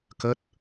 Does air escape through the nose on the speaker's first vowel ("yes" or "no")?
no